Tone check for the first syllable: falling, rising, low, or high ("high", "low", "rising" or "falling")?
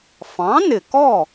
rising